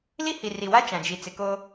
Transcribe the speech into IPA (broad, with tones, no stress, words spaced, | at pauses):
li˦hi˨ri˨wa˦ t͡ʃã˨d͡ʒi˨ t͡sɪ˨ ko˦